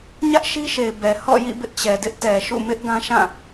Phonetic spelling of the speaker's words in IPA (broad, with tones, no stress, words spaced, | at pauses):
ɲä˦ʔ ʃi˦ʃe˨ɪ̯ bɛ˨ hɔ̰˦˨jḭ˦˨bɪ˦ʔ t͡ɕɛ˨dɪ˦ʔtɛ˨ʃṵ˦˨ mɪ˦ʔ ɡã˦ʃã˦˨